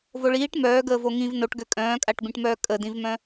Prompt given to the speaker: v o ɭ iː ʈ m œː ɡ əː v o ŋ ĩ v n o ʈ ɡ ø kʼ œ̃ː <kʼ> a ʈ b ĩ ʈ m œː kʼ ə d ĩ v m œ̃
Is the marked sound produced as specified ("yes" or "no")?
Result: yes